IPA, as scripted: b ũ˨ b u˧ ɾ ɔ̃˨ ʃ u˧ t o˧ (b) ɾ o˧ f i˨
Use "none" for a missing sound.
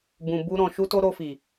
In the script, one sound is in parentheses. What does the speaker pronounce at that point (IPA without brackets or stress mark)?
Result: none